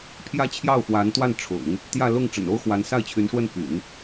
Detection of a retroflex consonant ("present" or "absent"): present